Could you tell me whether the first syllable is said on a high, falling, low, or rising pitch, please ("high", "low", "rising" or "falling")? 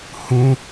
high